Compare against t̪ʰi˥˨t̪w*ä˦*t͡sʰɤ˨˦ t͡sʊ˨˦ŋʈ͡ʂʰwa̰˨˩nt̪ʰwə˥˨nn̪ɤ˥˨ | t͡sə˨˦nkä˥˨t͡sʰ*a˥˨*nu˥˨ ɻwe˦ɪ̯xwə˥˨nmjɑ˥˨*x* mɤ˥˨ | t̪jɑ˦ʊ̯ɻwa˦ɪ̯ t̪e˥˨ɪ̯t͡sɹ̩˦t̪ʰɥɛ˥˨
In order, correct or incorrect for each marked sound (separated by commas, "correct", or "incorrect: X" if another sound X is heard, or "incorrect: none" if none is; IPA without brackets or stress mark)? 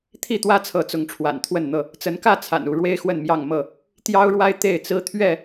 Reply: correct, incorrect: a̰˨˩, incorrect: ŋ